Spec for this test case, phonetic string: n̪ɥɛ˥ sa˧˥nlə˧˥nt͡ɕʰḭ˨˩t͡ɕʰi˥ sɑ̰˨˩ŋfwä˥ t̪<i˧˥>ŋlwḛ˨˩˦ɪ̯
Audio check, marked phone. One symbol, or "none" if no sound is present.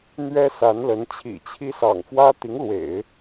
i˧˥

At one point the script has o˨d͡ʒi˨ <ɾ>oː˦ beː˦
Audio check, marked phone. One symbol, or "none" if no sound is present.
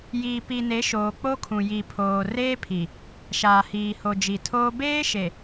tʰ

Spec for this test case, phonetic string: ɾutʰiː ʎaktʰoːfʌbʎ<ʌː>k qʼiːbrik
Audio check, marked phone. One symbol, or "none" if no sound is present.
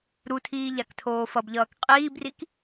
ʌː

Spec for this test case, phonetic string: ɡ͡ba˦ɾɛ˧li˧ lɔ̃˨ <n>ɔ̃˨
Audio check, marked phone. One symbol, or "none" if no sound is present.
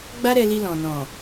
n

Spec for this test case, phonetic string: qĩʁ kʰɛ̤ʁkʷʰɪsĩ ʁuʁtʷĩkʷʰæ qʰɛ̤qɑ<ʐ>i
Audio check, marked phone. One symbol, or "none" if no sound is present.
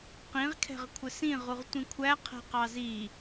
z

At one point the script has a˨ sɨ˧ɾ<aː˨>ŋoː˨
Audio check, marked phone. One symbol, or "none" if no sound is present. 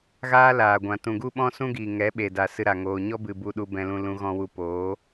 a˨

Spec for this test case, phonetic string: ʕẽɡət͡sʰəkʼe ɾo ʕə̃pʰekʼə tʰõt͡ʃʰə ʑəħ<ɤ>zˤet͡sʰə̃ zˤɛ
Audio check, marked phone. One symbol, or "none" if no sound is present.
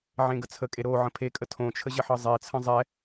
ɤ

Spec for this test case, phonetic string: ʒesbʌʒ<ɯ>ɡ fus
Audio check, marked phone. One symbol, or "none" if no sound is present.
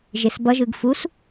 ɯ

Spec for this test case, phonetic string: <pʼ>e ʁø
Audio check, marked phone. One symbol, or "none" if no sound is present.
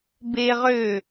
b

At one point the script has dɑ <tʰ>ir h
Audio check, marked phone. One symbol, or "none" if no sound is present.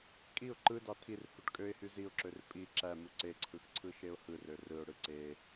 tʰ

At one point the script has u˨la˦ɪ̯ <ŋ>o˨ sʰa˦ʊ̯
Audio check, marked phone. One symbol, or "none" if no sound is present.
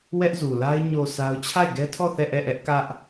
ɲ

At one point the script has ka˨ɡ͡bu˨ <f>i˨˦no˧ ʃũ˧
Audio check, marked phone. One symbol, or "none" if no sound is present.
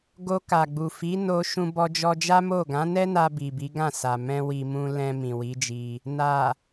f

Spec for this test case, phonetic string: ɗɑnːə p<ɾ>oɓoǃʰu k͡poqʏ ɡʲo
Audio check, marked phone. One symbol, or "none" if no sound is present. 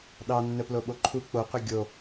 l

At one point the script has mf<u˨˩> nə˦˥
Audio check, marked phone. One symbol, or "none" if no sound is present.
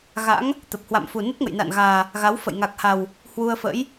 u˨˩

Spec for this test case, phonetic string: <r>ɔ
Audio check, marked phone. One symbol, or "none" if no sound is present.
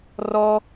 r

